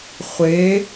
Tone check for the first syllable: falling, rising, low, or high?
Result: rising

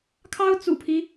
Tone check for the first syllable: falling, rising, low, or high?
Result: high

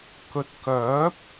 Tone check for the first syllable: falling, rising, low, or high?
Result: low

